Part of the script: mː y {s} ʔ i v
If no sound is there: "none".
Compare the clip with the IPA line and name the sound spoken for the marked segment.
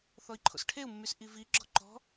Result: s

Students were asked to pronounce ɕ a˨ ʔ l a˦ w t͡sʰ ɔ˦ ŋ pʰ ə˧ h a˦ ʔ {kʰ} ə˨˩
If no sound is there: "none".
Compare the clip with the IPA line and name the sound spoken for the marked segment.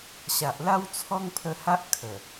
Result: kʰ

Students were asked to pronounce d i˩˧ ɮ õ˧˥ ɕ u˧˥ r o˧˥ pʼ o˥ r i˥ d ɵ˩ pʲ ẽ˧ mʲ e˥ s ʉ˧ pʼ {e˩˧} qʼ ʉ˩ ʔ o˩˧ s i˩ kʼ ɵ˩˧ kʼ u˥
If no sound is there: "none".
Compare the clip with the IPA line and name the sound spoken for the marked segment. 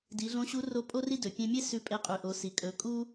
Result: e˧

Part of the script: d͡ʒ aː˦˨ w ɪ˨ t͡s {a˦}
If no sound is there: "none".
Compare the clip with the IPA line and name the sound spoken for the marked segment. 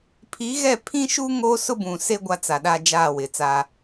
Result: a˦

